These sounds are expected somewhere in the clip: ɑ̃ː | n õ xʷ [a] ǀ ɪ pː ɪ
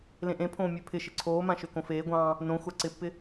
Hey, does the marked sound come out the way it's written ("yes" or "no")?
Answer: yes